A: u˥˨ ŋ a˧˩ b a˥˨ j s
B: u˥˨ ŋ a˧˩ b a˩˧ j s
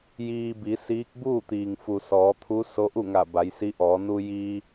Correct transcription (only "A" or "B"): B